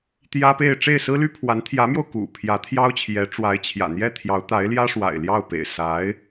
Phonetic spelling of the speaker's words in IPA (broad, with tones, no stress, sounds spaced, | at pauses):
t̪ j ä˥ p e˥˧ ɪ̯ ʈ͡ʂ e˥˩ ɪ̯ s ɹ̩˥ l y˥ pʰ w a˧˥ n t̪ʰ j ä˧˥ m j o˧ ʊ̯ k ṵ˨˩ pʰ j ä˧˥ t̪ʰ j ɑ˥ ʊ̯ t͡ɕʰ j ɛ˧˥ ʈ͡ʂ w a˧˥ ɪ̯ t͡ɕʰ j ä̰˨˩ n̪ j ɛ˥˩ t̪ʰ j ɑ˧˥ ʊ̯ t̪ a˧˥ ɪ̯ l j ä˥ ʂ w a̰˨˩ ɪ̯ l j ɑ˥˩ ʊ̯ p ḛ˨˩ ɪ̯ s a˧˥ ɪ̯